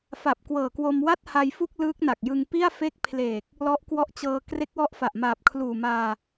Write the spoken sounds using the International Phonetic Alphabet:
f a˨˩ p̚ k w ɤː˨˩ k w o˧ m w a˥˩ t̚ h a˧ j f u˥˩ k̚ l ɯː˦˥ k̚ n a˨˩ k̚ j ɯ˧ ŋ p i˥˩ a̯ f e˦˥ k̚ pʰ l eː˨˩ k̚ | l ɔ˦˥ ʔ k w ɔ˦˥ ʔ t͡ɕ ɤː˧ k r e˦˥ k̚ w ɔ˦˥ ʔ f a˨˩ ʔ m aː˨˩ p̚ kʰ l uː˨˩ m aː˧

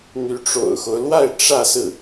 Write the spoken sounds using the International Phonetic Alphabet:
n̪ y˧˥ ʈ͡ʂ o̰˨˩ ʊ̯ x o˦ ʊ̯ l w a˥˧ ɪ̯ ʈ͡ʂ ä˥˧ s ɹ̩˥˩

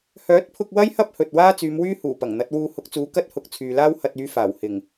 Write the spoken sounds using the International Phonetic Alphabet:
h œː˨˥ t̚ pʰ ʊ˧ k̚ w ɐ˥ j h ɐ˥ p̚ h ɵ˨ t̚ w aː˥ t͡s yː˨˧ m w yː˥ h uː˨˩ p ɐ˨˩ ŋ n̪ ɐ˨˥ t̚ w uː˧ h ʊ˨˥ k̚ t͡s uː˨˥ k ɐ˥ t̚ h ʊ˨˥ k̚ t͡sʰ yː˨ l aː˥ w h ɐ˧ t̚ yː˨˧ f aː˨˩ w h ɪ˨˩ ŋ

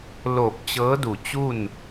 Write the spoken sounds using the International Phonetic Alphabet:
l o˧˩ p̚ t͡ɕ ɤː˧˥ d u˧˩ t͡ɕ u˥˨ n

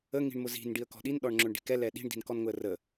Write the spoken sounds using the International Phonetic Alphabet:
ə ŋ i̤ ɳ m ʊ z i̤ n ɖ i ə̯ k ɔ̤ ɗ i n ɗ ɔ ɳ ŋ͡ǁ ʊ ɳ ɖ i̤ k ɛ l ɛ ɗ i̤ ɳ d i̤ n k ɔ n ŋ ʊ ə̯ r ə

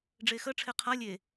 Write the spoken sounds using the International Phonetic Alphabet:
ɖ͡ʐ e x ə ʈ͡ʂʰ e qʰ a lʲ e

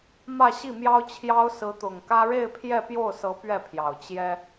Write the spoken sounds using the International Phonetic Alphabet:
m ä˥˧ ɕ i˥˩ m j ɑ˥ ʊ̯ t͡ɕʰ j ɑ˥ ʊ̯ s ɹ̩˧˥ t̪ ʊ˨˩ ŋ k ä˥ ɻ e˥˧ ɪ̯ pʰ j ɛ˥˧ p j o˥˩ ʊ̯ s ɤ˧˥ p ɥ ɛ˥˩ pʰ j ɑ˨˩ ʊ̯ t͡ɕ j ɛ˥

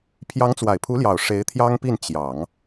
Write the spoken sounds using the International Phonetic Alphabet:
pʰ j ɑ˧˥ ŋ t͡s w a˨˩ ɪ̯ pʰ u˧˥ l j ɑ˨˩ ʊ̯ ʂ e˧˥ ɪ̯ t̪ʰ j ɑ˥ ŋ p i˥˩ n t͡ɕ j ɑ˨˩˦ ŋ

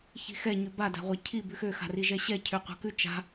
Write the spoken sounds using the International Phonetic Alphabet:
ç i̤ x ɛ ɲ ʉ b a d a̤ ʁʷ ɛ cʰ i b ʉ x ø x a̤ r i ʒ ɛ ɕ ɛ cʰ ø qʷ a̤ k ʉ t͡ʃ a̤

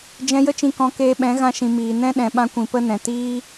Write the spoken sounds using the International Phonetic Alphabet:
d͡ʒ ɛ̃˧ j ə˦ t͡ʃ ĩ˧ k ɔ̃˨˦ k eː˧ ɓ ɛ̃˨˦ ɣ ã˧ ʃ ĩ˨ m iː˨ n ɛ̃˦ ɗ ɛ̃˨ ɓ ã˧ kʷ ĩ˨ p ə˦ n ɛ̃˨ t iː˦

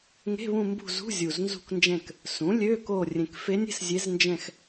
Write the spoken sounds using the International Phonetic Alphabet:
ŋ e̤˧˥˧ β ũ˦˨ m b ṳ˦˨ z ṳ˧˥˧ zʲ u˨˩ z n z ṳ˦˨ k n d͡ʒ ɛ̃˦˨ k | s ũ˩˥ lʲ ø˧˥˧ k o˦˨ rʲ ẽ˨˩ k f e˧˥ nʲ e̤˦˨ s zʲ e˧˥ z n d͡ʒ ɛ̃˦˨ x

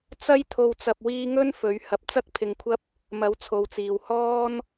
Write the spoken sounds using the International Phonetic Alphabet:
t͡s ɐ˥ j t̪ʰ o˧ w t͡s ɐ˧ p̚ w iː˥ ŋ ɵ˥ n f ɵ˨˥ ɥ h ɐ˨˥ p̚ t͡s ɐ˥ k̚ pʰ ɪ˧ ŋ kʷʰ ɐ˥ p̚ | m ɐ˨˥ w t͡sʰ o˨ w t͡s iː˨ w h ɔː˥ n

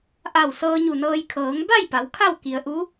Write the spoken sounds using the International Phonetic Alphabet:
ʔ a˧˩ w s ɤː˧ ɲ u˧˩ n ɤː˧ j kʰ ɤː˩˧ ŋ b a˥˨ j p a˩˧ w kʰ a˥˨ w k i˩ ə̯ ʔ u˧˥

